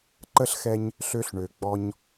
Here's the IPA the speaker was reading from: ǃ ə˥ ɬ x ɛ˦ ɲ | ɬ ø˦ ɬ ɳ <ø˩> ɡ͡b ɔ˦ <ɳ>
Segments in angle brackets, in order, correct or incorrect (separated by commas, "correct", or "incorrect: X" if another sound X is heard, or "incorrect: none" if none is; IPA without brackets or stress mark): correct, incorrect: ɲ